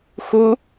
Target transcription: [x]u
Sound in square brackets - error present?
no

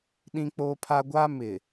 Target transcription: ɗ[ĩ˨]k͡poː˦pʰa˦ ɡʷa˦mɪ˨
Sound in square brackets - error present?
yes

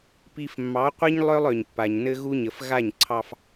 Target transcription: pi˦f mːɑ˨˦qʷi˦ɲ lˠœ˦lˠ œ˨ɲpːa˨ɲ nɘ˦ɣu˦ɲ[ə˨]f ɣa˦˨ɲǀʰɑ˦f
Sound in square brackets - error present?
no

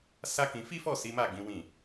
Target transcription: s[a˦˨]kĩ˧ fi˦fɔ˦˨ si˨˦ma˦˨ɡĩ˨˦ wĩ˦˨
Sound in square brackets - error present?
yes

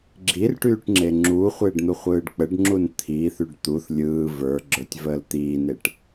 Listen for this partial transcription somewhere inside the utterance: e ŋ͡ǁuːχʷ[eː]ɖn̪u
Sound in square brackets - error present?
no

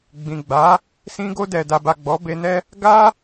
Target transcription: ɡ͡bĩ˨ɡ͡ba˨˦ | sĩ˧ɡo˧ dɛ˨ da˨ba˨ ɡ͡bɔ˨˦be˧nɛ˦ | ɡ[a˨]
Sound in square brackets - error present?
yes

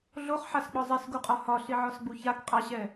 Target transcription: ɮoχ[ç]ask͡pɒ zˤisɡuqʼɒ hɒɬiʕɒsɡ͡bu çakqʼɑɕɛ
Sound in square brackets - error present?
yes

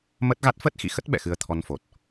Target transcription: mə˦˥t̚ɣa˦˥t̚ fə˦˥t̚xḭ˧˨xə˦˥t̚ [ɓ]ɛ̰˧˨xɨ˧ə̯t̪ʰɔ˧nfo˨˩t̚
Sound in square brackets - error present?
no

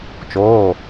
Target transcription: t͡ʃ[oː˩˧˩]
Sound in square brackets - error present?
no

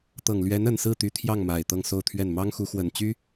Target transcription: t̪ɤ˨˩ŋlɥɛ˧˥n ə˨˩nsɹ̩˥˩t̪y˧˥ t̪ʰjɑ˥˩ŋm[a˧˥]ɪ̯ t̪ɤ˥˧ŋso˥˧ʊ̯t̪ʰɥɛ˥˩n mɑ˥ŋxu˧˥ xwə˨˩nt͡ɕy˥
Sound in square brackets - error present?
yes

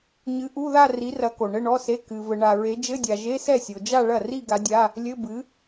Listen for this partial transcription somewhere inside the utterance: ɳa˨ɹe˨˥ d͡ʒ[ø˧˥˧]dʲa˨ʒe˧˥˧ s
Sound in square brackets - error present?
yes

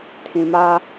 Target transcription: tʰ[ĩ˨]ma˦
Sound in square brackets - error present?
no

